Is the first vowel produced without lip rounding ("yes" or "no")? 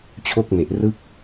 no